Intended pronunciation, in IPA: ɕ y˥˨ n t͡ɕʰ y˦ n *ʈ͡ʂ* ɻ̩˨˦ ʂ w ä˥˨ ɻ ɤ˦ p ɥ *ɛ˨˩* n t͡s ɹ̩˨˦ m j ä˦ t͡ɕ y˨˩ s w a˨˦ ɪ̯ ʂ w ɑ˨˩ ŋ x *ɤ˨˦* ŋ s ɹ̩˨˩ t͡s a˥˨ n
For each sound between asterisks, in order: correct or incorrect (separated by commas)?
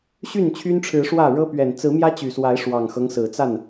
incorrect, correct, incorrect